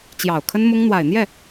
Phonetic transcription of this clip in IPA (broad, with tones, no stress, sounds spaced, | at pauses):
t͡ɕ j ɑ˨˩ ʊ̯ kʰ ə˥ n m ʊ˥ ŋ n̪ w a˨˩ ɪ̯ n̪ j ɛ˥˩